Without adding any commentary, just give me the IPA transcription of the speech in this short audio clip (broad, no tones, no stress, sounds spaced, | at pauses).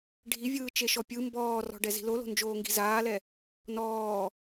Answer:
ɖʱ i vʲ ɯː t͡ʃ e ʃ ɔ pʲ ɯ m b ɔː r ɔ̤ ɖ ɛ z i̤ l o l o̤ n d͡ʒ oː ŋ ɡ i̤ z aː l ɛ | n ɔː